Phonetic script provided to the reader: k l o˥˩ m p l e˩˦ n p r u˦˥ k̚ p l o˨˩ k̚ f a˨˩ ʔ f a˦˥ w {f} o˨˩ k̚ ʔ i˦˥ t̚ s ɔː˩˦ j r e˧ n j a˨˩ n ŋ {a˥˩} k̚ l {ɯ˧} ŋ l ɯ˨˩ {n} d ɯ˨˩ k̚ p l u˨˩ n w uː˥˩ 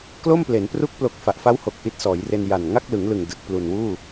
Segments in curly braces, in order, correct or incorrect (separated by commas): incorrect, correct, incorrect, incorrect